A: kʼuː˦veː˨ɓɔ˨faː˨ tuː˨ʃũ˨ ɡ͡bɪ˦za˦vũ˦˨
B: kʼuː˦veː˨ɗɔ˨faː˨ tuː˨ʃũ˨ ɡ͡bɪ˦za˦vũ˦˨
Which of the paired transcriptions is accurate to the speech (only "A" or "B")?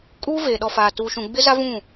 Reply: B